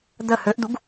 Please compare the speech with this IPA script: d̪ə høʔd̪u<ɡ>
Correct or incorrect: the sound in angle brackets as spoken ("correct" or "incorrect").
correct